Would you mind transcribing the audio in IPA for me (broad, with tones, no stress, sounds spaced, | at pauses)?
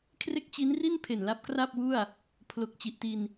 kʰ r e˥˩ k̚ t͡ɕ i˦˥ n r i˥˩ n pʰ e˨˩ n l a˦˥ p̚ k r a˥˩ p̚ w u˥˩ a̯ | pʰ l o˨˩ k̚ t͡ɕ i˨˩ ʔ t i˧ n